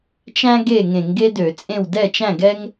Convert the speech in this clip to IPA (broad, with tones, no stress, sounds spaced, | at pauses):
t͡ʃ æ̃˥ ɡ e˥˨ ŋ ẽ˧˩˧ ŋ ɡ e˥ d ø˧˩˧ t͡sʼ ẽ˥˨ w d ɛ˥˨ t͡ʃ æ̃˥˨ ɡ ɛ˥ ŋ